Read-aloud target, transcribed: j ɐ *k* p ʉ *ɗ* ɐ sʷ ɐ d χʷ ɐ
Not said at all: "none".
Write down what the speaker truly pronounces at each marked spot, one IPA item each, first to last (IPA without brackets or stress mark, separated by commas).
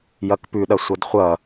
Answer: k, ɗ